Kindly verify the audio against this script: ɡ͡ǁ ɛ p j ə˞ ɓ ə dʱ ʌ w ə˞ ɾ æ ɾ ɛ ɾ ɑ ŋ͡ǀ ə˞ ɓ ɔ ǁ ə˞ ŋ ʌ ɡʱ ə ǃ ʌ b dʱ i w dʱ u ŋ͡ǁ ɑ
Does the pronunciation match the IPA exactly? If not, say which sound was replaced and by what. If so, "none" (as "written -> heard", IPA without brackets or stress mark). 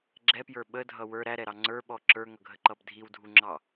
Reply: none